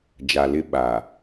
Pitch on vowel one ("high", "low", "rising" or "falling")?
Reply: low